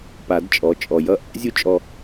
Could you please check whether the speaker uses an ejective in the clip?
yes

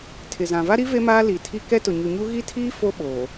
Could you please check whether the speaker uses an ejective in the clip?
no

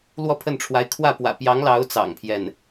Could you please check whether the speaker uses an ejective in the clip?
no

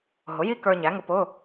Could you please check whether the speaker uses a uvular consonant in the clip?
no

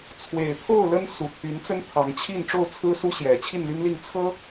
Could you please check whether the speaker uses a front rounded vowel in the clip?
yes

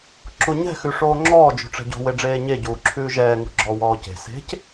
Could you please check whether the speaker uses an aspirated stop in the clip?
yes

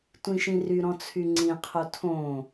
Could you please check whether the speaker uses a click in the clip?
yes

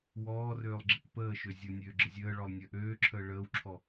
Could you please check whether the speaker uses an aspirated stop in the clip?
yes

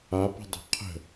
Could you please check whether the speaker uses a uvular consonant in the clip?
yes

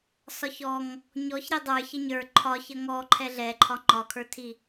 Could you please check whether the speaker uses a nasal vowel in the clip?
no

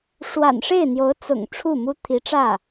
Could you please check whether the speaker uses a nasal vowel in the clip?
no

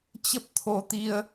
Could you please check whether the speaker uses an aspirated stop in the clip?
yes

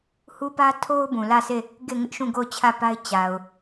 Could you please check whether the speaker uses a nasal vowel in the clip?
yes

